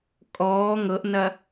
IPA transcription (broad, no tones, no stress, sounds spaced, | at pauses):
kʼ ɔː ŋ ɤ ʔ n ɐ